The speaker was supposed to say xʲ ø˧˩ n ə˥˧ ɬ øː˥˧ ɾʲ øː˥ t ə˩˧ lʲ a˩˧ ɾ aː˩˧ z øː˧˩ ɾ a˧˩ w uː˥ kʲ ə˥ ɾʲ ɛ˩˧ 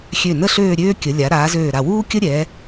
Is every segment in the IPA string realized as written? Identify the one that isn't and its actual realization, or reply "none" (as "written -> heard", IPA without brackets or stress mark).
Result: t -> kʲ